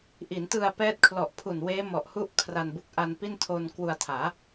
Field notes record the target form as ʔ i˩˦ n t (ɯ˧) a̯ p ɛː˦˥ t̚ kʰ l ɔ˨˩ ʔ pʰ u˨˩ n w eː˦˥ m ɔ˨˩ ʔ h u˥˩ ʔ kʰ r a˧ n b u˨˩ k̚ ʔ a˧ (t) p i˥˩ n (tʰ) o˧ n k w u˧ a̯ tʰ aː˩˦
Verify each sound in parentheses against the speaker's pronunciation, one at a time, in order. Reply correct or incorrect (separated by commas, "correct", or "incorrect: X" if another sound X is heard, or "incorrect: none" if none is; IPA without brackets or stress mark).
correct, incorrect: n, correct